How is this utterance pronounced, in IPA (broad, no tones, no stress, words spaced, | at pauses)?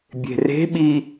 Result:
bʲe̤re̤ɓi